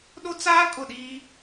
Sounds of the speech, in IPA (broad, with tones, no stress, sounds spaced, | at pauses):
ɗ o˦ t͡s aː˦ kʼ ʊ˦˨ ɗ iː˦